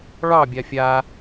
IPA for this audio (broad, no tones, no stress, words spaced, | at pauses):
ɭɑ bʲafʲa